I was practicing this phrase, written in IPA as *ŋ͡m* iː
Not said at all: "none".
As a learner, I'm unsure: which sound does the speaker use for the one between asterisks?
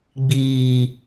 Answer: ɡ͡b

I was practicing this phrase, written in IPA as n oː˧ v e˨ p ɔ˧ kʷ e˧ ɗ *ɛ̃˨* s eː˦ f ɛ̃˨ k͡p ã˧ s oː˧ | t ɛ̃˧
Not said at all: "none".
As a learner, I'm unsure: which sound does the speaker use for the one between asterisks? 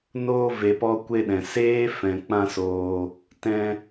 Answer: ɛ̃˨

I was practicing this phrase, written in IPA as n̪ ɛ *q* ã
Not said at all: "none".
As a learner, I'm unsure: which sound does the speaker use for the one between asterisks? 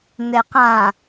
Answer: q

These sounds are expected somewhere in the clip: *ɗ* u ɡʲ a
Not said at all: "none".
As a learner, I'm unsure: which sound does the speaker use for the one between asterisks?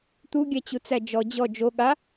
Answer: t̪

